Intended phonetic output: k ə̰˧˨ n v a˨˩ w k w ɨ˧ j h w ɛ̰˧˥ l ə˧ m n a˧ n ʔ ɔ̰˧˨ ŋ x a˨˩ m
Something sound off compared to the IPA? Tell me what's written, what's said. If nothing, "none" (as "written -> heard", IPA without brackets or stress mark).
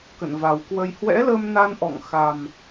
ɨ˧ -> ə˧